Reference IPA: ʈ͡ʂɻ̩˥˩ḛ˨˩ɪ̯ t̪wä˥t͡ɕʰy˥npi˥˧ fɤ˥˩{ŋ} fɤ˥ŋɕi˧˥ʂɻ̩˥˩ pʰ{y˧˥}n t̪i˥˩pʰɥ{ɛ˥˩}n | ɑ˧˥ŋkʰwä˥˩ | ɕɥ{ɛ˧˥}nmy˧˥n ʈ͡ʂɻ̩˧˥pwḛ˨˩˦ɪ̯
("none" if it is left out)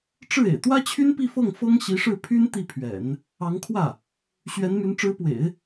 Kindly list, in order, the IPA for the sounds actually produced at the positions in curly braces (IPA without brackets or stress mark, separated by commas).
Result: ŋ, y˥, ɛ̰˨˩˦, ɛ˧˥